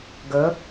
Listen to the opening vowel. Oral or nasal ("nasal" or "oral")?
oral